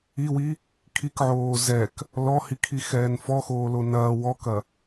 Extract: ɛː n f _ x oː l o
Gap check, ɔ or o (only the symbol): ɔ